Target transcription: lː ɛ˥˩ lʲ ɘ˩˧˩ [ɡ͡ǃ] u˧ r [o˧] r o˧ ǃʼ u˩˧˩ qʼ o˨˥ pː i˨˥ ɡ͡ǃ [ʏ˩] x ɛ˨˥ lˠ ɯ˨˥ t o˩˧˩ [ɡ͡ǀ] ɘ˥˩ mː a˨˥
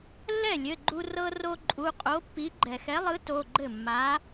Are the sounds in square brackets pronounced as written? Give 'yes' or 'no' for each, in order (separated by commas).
yes, no, no, no